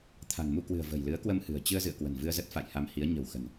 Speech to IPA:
t̪ʰa̤˨˩ŋmu˧kwɨ̤˨˩ə̯ və̤˨˩jlɨ˨˦ə̯kwə˧mhɨ̤˨˩ə̯ t͡ɕɨ˧ə̯zɨ̰˧˨ə̯ kwə̤˨˩nvɨ˧ə̯zə˦˥t̚ fa̰˧˨jha˧mhi˨˦ə̯ ɲə̤˨˩wxə̤˨˩n

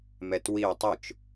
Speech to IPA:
mɛtwiw tˤʊt͡ʃ

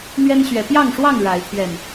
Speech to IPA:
n̪ɥɛ˦nɕɥɛ˨˦ pjɑ˥˨ŋʂwɑ˥˨ŋ ɻa˨˦ɪ̯ pʰɥɛ˨˩n

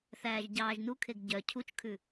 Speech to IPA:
θæːʒɟɑːʒnukʰeɡ ɟœ cʰut͡ʃkʰʉ

